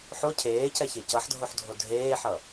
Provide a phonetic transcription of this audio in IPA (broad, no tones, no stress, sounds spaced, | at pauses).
ħ o cʰ eː c ɛ ç e c ʌ ħ dʱ o ħ dʱ o dʱ eː ħ ʌ